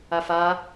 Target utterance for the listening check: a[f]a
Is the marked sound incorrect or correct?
correct